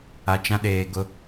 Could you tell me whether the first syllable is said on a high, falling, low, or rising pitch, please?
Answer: low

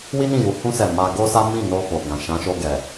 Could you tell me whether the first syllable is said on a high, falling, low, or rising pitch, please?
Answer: high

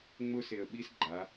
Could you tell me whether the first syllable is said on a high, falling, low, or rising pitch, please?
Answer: high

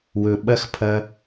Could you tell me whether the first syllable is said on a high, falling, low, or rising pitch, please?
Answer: high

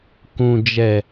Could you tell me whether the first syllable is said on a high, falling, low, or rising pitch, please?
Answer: low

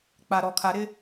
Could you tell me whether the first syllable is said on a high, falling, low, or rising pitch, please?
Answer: low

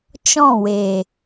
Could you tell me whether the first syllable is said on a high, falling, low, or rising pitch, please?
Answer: falling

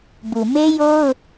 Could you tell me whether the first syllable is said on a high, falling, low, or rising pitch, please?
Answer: low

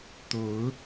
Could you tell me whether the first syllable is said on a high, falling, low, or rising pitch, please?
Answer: rising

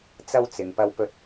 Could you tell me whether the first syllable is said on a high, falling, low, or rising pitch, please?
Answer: high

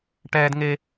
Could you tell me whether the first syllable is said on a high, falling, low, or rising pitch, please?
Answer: high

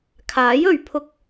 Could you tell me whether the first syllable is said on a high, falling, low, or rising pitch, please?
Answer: rising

